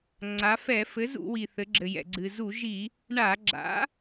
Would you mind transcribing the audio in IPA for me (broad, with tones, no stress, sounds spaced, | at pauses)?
ŋ͡ǀ a˩˧ f ɛ˧˩˧ f ɘ˩˥ z ṵ˧˩˧ w i˩ θ ɘ˩˧ ɡ͡ǁ ɘ˩ j ɛ̰˩ ɡ͡ǀ ɨ˩ z u˧˩˧ ʒ i˧˩˧ | ɳ a˧˩˧ ɡ͡ǁ a̰˩˥